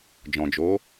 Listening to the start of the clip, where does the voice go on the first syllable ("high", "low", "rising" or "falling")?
low